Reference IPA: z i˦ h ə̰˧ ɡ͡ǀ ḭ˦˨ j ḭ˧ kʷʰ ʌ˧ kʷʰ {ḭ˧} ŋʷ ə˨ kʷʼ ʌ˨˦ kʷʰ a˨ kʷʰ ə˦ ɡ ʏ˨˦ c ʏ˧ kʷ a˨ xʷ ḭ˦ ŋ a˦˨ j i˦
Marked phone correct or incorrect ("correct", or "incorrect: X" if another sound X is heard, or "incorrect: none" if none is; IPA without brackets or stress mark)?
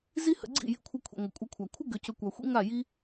incorrect: ḭ˨